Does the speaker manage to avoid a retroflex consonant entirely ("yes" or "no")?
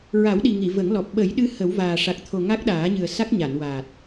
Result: no